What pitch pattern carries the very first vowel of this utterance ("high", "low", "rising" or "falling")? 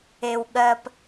low